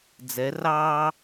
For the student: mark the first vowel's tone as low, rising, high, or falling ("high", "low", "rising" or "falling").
rising